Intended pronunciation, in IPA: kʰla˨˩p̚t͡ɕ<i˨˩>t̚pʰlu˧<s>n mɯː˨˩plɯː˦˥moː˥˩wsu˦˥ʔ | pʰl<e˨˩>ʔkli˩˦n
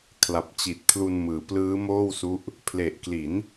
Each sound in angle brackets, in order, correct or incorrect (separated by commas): correct, incorrect, correct